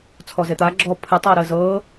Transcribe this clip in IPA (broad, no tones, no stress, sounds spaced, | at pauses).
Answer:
t͡sʰ ɔ z e t̪ a ɡ͡ǁ ɔ pʰ ɨ tˤ u ɐ̯ ɾ əː z ɤː